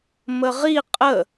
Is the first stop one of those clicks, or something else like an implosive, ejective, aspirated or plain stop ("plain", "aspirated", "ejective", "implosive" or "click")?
ejective